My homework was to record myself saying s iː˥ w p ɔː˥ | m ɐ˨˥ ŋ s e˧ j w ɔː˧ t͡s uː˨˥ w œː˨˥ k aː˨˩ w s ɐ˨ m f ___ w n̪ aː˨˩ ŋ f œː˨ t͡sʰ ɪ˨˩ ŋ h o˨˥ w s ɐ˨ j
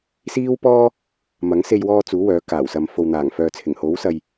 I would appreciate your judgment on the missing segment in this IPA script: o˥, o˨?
o˨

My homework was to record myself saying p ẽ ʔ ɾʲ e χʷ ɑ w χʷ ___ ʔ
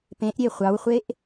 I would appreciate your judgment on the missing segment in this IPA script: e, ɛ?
e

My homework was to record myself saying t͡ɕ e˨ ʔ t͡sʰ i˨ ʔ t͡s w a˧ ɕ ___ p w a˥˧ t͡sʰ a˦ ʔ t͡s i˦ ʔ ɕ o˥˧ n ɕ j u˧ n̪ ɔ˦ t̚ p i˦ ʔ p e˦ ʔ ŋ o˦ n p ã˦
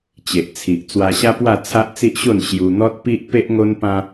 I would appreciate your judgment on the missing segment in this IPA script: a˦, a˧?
a˦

